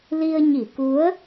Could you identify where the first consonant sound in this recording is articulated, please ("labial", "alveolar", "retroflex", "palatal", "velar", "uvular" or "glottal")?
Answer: alveolar